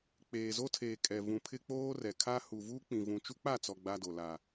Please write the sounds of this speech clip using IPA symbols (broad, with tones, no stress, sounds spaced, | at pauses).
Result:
k͡p eː˨ z o˦ tʰ eː˨ kʼ ɛ˨ v ũ˨ pʰ ɪ˦ k͡p oː˦ r ɛ˨ kʰ a˦ h u˨ v uː˦ k͡p ĩ˨ v ũ˨ t͡ʃ u˦ k͡p a˦˨ t͡s ɔ˨ ɡ͡b a˦ d o˨ l a˨